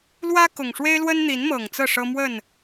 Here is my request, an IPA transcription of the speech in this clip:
l w ä˦ k ʊ˨˩ ŋ ʂ w e˦ ɪ̯ l w ə˦ n n̪ i˨˦ n m ɤ˨˩ ŋ t͡s ɤ˥˨ ʂ ɤ˦ m w ə˥˨ n

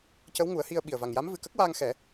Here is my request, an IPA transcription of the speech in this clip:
c ə˧˥ w ŋ u˨˩˦ ə̯ h i˧ ə̯ ɓ i˨˩ ə̯ v a˨˩ ŋ j a˧˥ m v ɨ˨˩ k ə˦˥ k̚ w aː˧ ŋ x ɛ˨˩˦

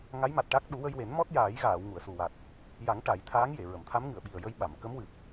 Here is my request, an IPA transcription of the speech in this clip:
ŋ a˧˥ j m a˨˩ t̚ ʈ a˦˥ k̚ ɗ u˨˩˦ w ə˧ j w e˨˩˦ n m ɔ˦˥ t̚ j aː˨˩˦ j ɣ aː˨˩˨ w ŋ u˨˩˨ ə̯ s u˨˩ w a˨˩ t̚ | j a˨˩˦ ŋ ʈ a˨˩˦ j t̪ʰ aː˧˥ ŋ j e˨˩˨ ɹ ə˨˩˨ m t̪ʰ a˧˥ m ŋ ɨ˨˩˨ ə̯ ɓ i˨˩ ə̯ j ə˧ j ɓ a˨˩˨ m k ə˧˥ m w ɨ˨˩ p̚

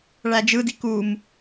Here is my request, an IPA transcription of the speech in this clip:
ɭ æ d͡ʒ ɯ d i k u m

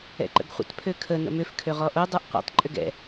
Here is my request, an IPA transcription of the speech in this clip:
ɛ̰ ǃ ə̰ ɡ χʷ ə̰ t pʰ ø kʰ ə n ə̰ m ʏ f kʰ ø ʁ ɔ ʔ o dˤ ə˞ ʔ qʷ ɛ̰ tˤ ǃʼ ʏ ɡ ɛ̰

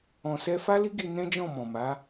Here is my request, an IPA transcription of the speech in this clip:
ɔ̃˧ s ɛ˦ f a˦ l i˦ ɡ i˧ n ɛ̃˦ d͡ʒ ɔ̃˦˨ m ɔ̃˨ m a˨˦

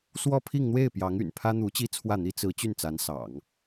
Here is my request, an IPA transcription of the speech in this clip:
s w ɔ˥˧ pʰ i˥˧ ŋ n̪ w e˥˩ ɪ̯ p j ɑ˧˥ ŋ y̰˨˩ n pʰ ä˥ n̪ u˧˥ t͡ɕ i˥ t͡sʰ w ä˥˩ n̪ i˥ t͡s ɹ̩˧˥ t͡ɕ y˥˩ n t͡s a˧˥ n s ɑ̰˨˩˦ ŋ

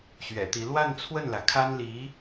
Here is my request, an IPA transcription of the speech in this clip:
ɕ ɥ ɛ̰˨˩ t̪ i˧˥ l w a˥˧ n t͡sʰ w ə˥˩ n l ä˩ kʰ a˥ n l i˧˥

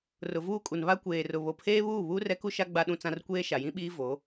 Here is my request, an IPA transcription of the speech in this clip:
r ʊ˨ v uː˦ kʼ u˨ n β a˦ kʷ eː˨ r ʊ˨ β o˨ pʰ eː˦ β uː˦˨ β uː˦ r ɛ˦ k u˦ ʃ a˦ ɡ͡b a˦ ɗ ũ˦ t͡s ã˦ r kʷ eː˦ ʃ a˨ j ĩ˦ ɓ iː˦ v o˨˦

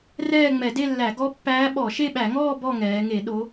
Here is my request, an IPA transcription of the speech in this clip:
r ɛː˥˧ ŋ͡m ɛ˧˩˧ d e˥˧ lː æ˧˩˧ ɡ ɔ˦˥ pː æː˦˥ ɓ ɔ˧˩˧ ʃ e˥˧ ɓ æ˧˩˧ ŋ ɔː˥˧ b ɔ˥˧ ŋ ɛː˩˧ ŋ e˧˩˧ ɗ o˩˧

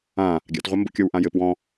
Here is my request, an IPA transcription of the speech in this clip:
ã | ɡʲ a̰ t ʁʷ ɜ m b o̰ kʲ ɤ w ʔ ã j ɘ p w ɔ̃

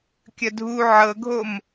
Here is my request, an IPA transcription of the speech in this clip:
kʲ ə dʱ u ʕ ɤ ɡʱ o m

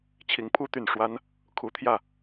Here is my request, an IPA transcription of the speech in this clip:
t͡ɕʰ i˧˥ ŋ pʰ u˥ t̪ y˨˩ n ʂ w a˥ n | kʰ u˧˥ t̪ʰ j ä˥˩

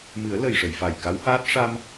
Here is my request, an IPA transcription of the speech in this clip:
m ɨ˨˩˦ ə̯ l ə˨˩ j ʂ ə˨˩˨ j f a˨˩ j k a˧˥ w h aː˦˥ t̚ ʂ a˧ m

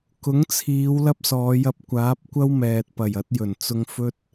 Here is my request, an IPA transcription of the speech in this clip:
k ʊ˨˥ ŋ t͡sʰ iː˨˧ w l ɐ˥ p̚ s ɔː˨˧ j ɐ˧ p̚ kʷ aː˨˥ p̚ kʷ ɐ˥ w m ɛː˨ t̚ p ɐ˨˩ j ɐ˨˥ t̚ j ɵ˨˩ n t͡s ʊ˧ ŋ f ɵ˥ t̚

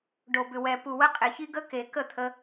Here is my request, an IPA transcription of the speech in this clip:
ɖ o˨ b ʏ˨ w ɛ˨ p u˨ w ə˧ qʼ e˨ ç i˧ ɡ ə˧ k e˨ k ə˦˨ t̪ʰ ə˧

